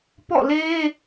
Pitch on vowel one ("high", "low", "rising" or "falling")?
falling